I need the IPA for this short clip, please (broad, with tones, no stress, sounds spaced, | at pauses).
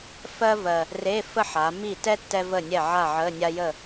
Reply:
f ɜ˥ v ɜ˨˩ | r e˧˥˧ f ə˥ ħ a˩˧ m i˥˨ t ɛ˥ tː ɛ˥ v ə˥˨ nʲ ɛ˥˨ ʕ a˥˨ ʕ ə˧˥˧ nʲ a˥ j ə˥˨